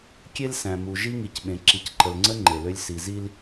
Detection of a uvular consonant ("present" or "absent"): absent